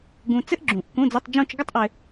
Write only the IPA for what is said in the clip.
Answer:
ɡ ũ˧ t͡s ɘ˥ ʔ ɡ͡ǁ ũ˨˩˦ ʔ k ũ˧˥˧ d͡z ɘ˧˥˧ tˤ d͡ʒ ũ˥˧ t͡ʃ ɡ ə˥ tˤ ʔ ɘ˧

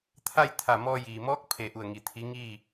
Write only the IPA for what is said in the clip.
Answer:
t̪ʰ a˥˨ j t̪ʰ a˧˩ m ɔː˧ j iː˩ m ɔː˧˥ k̚ pʰ e˧˩ ʔ u˧˩ ə̯ ŋ i˧˩ t̪ʰ i˧˥ ŋ iː˥˨

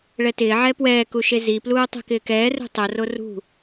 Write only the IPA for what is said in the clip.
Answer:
ɭ ɛ t ɪː ʕ ɛ p w ɛː k u ʃ e z i p l uː tˤ ɛ̤ k ɪː k ɛː r ṳ tˤ o r o r ṳ

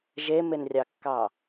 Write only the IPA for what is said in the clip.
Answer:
ʒ e m e n rʲ ɑ kː ɑ

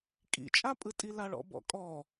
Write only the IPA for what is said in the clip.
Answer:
kʼ ḭ t͡ʃʼ a pʼ ɯ tʼ i l a ɭ ɔ̰ b ɔ̰ kʼ ɔ

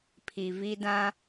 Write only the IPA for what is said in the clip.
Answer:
pʰ i˨ v i˦ d ã˦

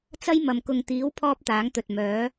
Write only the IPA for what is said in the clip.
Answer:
t͡s ɐ˥ j m ɐ˨ m k ʊ˨ ŋ t̪ iː˨˥ w pʰ ɔː˥ p̚ t̪ aː˨˥ ŋ t̪ ɵ˨ t̚ m œː˨˥

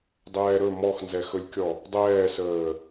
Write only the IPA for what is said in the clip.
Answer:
dˤ ɛː ɾ ɵ m ɔ x n z ɛ x ɵ lʲ kʲ ɔ | dˤ ɛː s əː

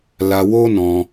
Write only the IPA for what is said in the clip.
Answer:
l a˧ w o˦ n ɔ̃˧

